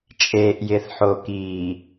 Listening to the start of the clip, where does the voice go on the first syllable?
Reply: low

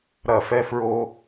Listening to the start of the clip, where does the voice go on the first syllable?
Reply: falling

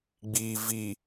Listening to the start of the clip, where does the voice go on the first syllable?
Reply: low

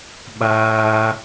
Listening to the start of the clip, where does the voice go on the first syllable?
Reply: high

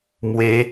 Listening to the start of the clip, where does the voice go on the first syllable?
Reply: rising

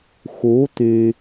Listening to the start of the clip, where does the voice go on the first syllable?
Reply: rising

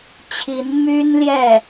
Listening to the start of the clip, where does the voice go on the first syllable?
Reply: rising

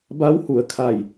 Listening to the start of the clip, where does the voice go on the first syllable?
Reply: rising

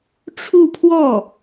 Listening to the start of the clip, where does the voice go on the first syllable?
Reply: falling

